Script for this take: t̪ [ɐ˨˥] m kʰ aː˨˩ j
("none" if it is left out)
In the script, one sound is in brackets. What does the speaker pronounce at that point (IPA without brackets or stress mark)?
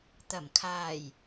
ɐ˨˩